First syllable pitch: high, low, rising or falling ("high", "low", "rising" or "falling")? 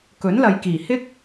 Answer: rising